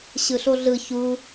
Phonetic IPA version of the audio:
ɕ ɯ ɬ o ɮ ɯ ç u

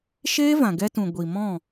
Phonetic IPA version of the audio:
ʃ eː˦ v ã˨ ɡ ɛ˧ t ũ˨ ɡʷ i˨ m ɔ̃˦˨

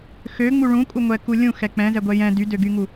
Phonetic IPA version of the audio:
x ø ŋ͡m u ɭ ũ kʼ u ŋʷ ɛ k u lʲ ũ x ɛ k͡p ɛ̃ z ɛ ɡʷ ɛ j ɛ̃ d y d ø ɡ y ŋ u

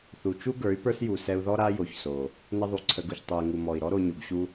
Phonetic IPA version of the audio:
θ u˨ t͡ʃ u˦ ɡ ə˞˨˦ y̯ p ə˞˦ s j u˨ s ɛ˧ u̯ ð ɔ˦ ɾ a˦ j o˨ ç s o˨ | n ə˧ ðˤ u˨ ǀʰ ə˨ ɡ u˨ ç tˤ u˨ i̯ ŋ u˨ m ɔ˨ i̯ ɾ ɔ˦ ɾ o˧ ɲ u˨ ɡ ɕ u˦

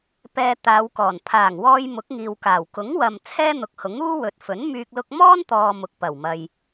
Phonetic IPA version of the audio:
p ɛː˧ t̪ aː˨˧ w k ɔː˨˩ n pʰ aː˨˩ ŋ w ɔː˧ j m ʊ˨˥ k̚ ŋ iː˨ w k aː˨˩ w k ʊ˨˥ ŋ w ɐ˨ m t͡sʰ ɛː˥ n̪ ʊ˨ k̚ h ʊ˨˥ ŋ uː˥ w ɵ˨ t̚ f ɵ˨˥ n m yː˧ k̚ l ʊ˧ k̚ m ɔː˥ n t̪ ɔː˨ m ʊ˨ k̚ p ɐ˨˩ w m ɐ˨ j

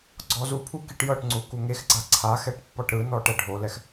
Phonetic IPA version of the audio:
ɡ͡ǀ ɔ z u pʰ u k i ʈ j ɤ ʈ ŋ͡ǀ u k u ŋ e x ɡ͡ǀ a ǀʰ a x ɛ ʈ pː ɔ ʈ ɾ ɯ n ɔ ʈ ɛ ɖʱ o l ɛ x

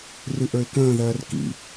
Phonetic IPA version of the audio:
r ɨ ʔ ə˞ ɪ̯ k ə̃ː ð ɜː r k ḭ

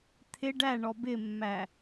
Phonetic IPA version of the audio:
t̪ʰ ɪ ɖ æ ɳ ɔ b ɪ mː æ

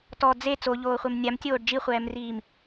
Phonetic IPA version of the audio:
t ɔ d͡z e t͡s o ʎ oː χʷ e m nʲ a m tʲ oː ɖ d͡ʒ i χʷ ɛː m r iː m

